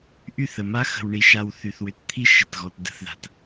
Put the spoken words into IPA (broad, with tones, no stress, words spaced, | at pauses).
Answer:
ʔy˦˨θə˨ma˦ xə̤˨w ɳi˨ʃa˨w θy˨θwʏ˨tt̪ʰi˦ ʃɪ˨tɣɔ˨t də̤˦θða̤˨t